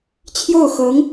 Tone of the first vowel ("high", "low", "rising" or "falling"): falling